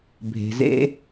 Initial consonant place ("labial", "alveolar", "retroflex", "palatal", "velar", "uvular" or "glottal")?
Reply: labial